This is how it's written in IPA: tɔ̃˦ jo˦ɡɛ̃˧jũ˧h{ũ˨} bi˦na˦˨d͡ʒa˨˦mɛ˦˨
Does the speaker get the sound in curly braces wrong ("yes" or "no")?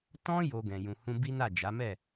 yes